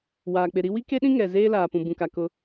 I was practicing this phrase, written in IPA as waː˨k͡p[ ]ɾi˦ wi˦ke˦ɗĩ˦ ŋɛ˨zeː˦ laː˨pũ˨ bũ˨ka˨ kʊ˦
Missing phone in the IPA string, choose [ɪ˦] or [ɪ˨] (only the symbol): ɪ˨